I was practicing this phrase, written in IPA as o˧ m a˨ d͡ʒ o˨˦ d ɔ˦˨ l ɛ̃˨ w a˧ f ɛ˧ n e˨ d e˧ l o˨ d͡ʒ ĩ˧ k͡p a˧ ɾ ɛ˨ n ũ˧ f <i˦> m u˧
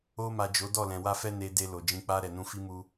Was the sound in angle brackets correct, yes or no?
yes